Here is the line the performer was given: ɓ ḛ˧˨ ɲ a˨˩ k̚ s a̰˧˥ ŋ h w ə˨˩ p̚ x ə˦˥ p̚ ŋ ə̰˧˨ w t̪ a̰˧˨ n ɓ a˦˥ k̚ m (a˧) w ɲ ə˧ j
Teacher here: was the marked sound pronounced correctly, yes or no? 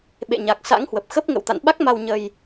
yes